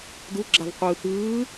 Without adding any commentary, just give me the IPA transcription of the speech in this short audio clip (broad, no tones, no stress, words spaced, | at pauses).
duɡ͡ǁavqʷɯː t̪ɯː